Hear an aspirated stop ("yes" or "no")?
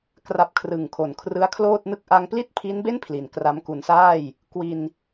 yes